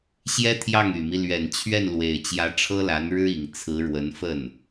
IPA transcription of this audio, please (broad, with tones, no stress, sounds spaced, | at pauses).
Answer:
ɕ j ɛ˥ t̪ʰ j ɑ˥˩ ŋ y˨˩ m i˦ l ɥ ɛ˨˩ n t͡ɕʰ ɥ ɛ˥˩ n l w e˨˩ ɪ̯ t͡ɕ j ä˧˥ ʈ͡ʂʰ ɤ˥ l a˧˥ n ɻ ɻ̩˥ i˨˩ ŋ t͡sʰ ɹ̩˧˥ ɻ w ə˧˥ n f ə˥˩ n